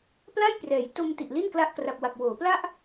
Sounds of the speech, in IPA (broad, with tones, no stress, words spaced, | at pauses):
pla˥˩jprɛː˩˦jto˧mti˨˩ʔ li˥˩nkla˦˥ʔkra˨˩p̚wa˨˩k̚ woː˩˦pla˥˩ʔ